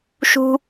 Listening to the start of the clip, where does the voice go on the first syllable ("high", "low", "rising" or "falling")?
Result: high